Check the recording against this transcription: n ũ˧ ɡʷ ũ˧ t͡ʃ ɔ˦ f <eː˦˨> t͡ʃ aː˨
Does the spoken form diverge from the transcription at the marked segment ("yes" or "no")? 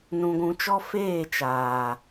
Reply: no